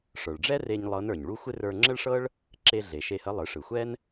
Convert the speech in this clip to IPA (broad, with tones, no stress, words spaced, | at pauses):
ʂə˞˩ɭɖ͡ʐɛ˥re˧ɲ lˠɤ˧˥nə˞˩ɲ ɭu˥ xʷɪ˥ rə˞˧ŋ͡ǁə˥ɭʂɤ˥ɭ | ǁe˧ ɮe˩ʃe˧hə˧˥ lˠɯ˩˧ʂɯ˩xʷɛ˥n